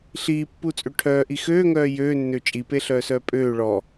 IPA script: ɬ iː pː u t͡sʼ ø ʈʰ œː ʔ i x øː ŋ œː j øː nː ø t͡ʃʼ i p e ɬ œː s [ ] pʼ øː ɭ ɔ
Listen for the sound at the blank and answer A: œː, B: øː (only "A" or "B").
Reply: A